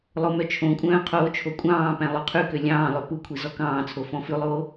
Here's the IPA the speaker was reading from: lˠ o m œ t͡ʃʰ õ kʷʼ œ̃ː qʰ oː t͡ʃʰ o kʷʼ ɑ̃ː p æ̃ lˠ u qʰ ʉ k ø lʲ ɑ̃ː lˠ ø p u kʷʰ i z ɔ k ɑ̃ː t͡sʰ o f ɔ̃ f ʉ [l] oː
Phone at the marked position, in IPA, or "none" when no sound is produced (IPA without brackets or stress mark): lˠ